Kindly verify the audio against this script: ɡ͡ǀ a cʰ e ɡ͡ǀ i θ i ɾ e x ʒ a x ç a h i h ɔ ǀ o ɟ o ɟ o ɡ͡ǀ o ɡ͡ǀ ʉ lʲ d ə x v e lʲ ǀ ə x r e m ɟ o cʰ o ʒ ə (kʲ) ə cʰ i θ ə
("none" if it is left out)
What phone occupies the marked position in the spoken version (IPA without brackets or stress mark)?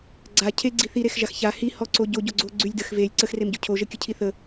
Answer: kʲ